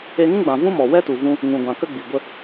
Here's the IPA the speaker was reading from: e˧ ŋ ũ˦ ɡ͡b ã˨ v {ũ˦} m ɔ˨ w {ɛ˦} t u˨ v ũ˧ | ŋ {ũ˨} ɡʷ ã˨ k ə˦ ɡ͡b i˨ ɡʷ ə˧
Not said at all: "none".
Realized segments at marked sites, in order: ũ˦, ɛ˦, ũ˨

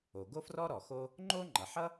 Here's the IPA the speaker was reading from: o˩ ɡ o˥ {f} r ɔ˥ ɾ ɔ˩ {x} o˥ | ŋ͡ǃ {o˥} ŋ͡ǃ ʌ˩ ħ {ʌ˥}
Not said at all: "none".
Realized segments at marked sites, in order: f, x, o˥, ʌ˥

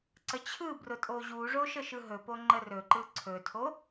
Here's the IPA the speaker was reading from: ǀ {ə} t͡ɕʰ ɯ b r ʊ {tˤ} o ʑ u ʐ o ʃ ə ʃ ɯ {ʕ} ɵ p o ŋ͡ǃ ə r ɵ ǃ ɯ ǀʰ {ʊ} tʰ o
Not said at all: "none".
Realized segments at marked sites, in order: ə, tʼ, ɦ, ɵ

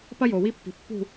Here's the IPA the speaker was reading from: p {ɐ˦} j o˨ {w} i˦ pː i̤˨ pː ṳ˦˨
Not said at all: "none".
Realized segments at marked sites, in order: ɐ˦, w

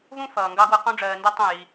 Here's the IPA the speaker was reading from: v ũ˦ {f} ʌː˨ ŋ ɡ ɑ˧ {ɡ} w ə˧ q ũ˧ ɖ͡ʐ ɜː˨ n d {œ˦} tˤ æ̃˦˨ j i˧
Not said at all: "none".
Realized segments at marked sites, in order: f, ɡ, æ˦

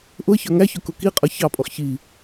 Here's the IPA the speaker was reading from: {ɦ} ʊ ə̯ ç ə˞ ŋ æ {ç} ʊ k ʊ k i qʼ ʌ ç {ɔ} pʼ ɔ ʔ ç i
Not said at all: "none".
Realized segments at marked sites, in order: ʔ, ç, ɑ

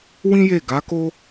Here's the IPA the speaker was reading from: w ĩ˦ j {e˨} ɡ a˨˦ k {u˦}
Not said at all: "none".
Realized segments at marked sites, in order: e˦˨, o˦

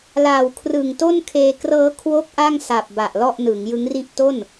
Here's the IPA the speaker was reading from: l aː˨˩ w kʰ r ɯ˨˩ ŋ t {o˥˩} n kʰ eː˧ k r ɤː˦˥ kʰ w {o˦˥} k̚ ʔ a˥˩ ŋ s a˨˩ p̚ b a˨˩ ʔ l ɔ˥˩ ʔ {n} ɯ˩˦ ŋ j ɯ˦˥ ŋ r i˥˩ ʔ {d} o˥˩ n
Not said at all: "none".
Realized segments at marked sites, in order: o˥˩, o˥˩, n, t

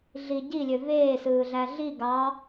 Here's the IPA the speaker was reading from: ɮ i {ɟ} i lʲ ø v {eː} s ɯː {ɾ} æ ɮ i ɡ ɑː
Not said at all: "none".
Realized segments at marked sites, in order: ɟ, eː, ɮ

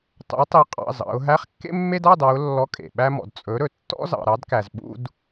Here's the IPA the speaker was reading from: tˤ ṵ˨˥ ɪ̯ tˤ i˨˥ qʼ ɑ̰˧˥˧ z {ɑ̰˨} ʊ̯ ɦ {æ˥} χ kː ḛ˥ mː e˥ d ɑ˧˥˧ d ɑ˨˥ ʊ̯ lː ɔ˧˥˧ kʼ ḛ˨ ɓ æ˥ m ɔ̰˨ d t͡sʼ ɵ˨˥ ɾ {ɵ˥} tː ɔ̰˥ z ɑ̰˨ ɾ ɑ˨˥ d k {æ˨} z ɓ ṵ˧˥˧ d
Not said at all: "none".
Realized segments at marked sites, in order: ɑ̰˨˥, æ˧˥˧, ɵ˨, æ˨

